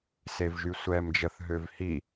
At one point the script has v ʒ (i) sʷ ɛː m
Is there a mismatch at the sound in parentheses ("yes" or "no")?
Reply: yes